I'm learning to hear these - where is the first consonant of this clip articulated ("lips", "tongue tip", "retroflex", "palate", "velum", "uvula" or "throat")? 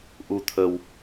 throat